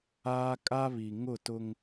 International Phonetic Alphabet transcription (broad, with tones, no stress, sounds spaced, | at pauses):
aː˦ kʼ a˦ β i˨ ŋ ʊ˦˨ t ʊ˦ ŋ